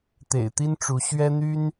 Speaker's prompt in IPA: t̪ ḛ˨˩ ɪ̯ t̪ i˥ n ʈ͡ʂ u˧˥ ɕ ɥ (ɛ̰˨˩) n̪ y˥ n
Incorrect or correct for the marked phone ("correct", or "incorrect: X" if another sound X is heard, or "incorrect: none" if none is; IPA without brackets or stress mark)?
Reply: incorrect: ɛ˥